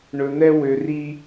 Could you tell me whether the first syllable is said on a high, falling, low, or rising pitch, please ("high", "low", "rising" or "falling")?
low